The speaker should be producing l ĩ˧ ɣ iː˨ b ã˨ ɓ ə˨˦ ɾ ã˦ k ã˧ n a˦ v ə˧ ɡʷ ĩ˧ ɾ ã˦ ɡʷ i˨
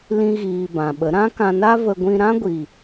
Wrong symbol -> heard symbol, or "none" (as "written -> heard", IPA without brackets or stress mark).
none